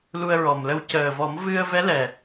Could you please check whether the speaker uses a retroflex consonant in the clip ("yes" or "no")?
no